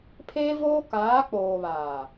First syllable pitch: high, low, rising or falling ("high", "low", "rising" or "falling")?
high